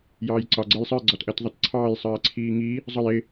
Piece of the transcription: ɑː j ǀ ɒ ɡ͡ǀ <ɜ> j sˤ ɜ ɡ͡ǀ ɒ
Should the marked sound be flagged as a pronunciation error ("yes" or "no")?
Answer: no